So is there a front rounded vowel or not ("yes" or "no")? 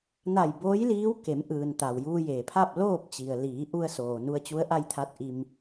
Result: no